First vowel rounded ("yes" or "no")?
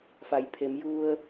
no